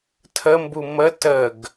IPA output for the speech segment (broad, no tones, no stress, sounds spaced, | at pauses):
tʰ ə m b u m ə t ə ɡ